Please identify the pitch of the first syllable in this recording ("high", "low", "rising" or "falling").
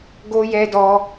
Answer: high